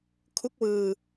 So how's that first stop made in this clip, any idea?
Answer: aspirated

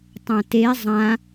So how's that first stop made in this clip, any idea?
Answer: plain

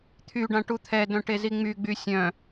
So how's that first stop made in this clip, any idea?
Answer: aspirated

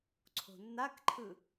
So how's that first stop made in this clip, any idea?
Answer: click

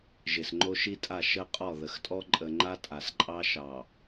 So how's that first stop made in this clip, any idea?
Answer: click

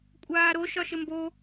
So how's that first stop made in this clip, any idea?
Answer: ejective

